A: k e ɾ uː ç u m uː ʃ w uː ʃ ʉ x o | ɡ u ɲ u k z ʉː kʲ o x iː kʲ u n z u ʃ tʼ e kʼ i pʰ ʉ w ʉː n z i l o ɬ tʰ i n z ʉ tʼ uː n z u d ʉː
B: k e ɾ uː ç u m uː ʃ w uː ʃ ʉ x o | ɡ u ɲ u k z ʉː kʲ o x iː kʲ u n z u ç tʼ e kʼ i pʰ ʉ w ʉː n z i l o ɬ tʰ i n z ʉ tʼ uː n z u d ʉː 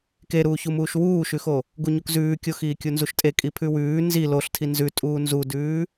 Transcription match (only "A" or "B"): A